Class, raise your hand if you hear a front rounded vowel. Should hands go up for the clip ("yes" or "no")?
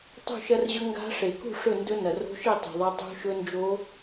no